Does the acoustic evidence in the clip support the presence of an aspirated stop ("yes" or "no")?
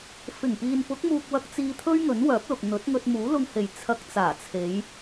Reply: yes